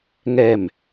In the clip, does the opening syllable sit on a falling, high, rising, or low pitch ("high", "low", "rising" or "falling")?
falling